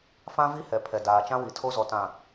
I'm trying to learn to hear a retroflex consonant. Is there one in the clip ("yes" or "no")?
no